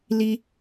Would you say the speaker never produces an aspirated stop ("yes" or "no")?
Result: yes